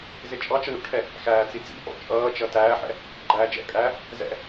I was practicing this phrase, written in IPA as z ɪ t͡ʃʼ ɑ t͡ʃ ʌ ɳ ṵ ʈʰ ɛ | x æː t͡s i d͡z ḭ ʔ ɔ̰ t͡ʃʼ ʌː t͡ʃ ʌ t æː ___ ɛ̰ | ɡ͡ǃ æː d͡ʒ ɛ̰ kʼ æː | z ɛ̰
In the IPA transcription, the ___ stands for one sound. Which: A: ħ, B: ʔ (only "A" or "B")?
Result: A